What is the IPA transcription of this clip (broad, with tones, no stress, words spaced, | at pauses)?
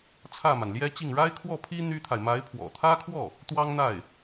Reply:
t͡sʰä˥˩ma˩n ljɛ˥t͡ɕi˥˩ŋ ɻa˥ɪ̯kʰwɔ˥˩pʰi˥ n̪y˥t̪ʰa˨ɪ̯ ma˧˥ɪ̯pʰwɔ̰˨˩t̪ʰä˥kʰwɔ˥˩ | t̪wɑ˥ŋn̪a˥˩ɪ̯